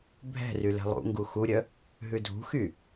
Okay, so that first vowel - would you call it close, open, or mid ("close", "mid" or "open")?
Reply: mid